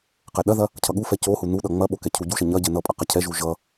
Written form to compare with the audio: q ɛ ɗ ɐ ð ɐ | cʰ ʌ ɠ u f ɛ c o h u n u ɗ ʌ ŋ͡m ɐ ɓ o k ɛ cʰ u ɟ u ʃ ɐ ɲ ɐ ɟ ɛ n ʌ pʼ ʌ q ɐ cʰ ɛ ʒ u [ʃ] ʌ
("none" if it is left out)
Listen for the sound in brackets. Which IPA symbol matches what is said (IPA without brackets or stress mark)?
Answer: ʒ